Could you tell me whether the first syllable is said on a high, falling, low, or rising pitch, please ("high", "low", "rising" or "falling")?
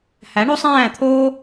rising